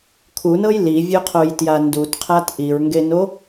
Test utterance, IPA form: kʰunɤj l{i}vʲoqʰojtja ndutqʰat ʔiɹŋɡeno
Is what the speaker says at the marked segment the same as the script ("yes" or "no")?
yes